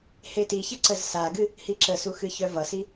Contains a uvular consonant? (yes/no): no